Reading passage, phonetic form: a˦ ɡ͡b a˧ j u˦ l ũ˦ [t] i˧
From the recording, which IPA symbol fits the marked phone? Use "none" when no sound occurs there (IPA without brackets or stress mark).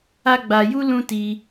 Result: t